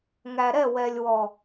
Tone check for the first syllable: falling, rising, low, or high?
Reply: low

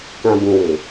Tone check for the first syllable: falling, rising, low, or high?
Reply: low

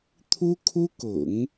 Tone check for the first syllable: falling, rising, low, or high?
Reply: high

